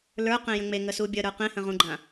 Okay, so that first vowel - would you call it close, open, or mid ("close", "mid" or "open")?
mid